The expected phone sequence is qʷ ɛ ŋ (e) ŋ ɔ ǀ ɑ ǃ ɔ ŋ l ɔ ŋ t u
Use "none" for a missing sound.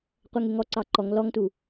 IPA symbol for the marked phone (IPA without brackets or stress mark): e